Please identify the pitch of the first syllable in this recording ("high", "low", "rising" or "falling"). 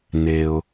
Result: high